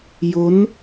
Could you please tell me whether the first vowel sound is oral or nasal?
oral